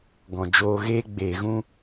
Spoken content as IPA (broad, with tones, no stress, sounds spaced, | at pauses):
ɡ ɔ̃˨ d͡ʒ oː˧ ɣ eː˦ ɡ͡b eː˨ ɣ ũ˧